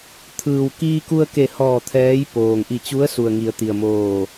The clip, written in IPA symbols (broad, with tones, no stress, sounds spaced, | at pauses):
t̪ʰ ɯː˩ w k iː˧ k u˧ ə̯ k e˧˩ h ɔː˧˩ t̪ʰ ɛː˧˥ j p oː˩ ŋ ʔ i˧˩ t͡ɕ u˧˥ ə̯ s u˩ ə̯ ŋ i˩˧ ə̯ t̪ i˩ ə̯ m oː˧˩